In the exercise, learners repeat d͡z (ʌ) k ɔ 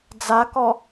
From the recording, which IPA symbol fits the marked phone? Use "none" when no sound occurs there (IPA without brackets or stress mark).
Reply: a